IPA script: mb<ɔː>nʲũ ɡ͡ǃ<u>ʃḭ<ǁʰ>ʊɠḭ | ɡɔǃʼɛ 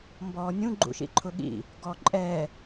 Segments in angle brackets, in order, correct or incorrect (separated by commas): correct, incorrect, incorrect